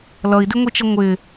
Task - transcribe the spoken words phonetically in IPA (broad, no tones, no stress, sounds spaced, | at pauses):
l ʌ i̯ d ɪ ŋʷ i t͡ʃ ə ŋʷ ɪ